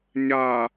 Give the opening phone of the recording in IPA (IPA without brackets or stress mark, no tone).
ɲ